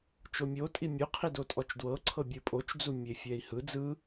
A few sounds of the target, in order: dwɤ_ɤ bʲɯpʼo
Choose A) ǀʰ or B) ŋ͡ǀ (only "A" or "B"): A